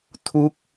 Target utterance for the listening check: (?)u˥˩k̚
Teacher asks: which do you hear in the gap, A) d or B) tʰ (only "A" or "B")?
B